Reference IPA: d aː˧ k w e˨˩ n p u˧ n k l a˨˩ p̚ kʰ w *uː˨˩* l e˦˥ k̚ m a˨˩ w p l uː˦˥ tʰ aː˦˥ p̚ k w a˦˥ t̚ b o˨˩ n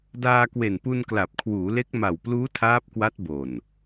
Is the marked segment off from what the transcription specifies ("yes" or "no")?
yes